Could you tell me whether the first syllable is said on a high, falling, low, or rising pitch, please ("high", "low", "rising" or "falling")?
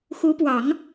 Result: rising